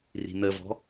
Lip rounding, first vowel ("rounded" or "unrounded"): unrounded